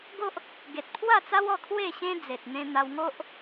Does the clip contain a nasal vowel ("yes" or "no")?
yes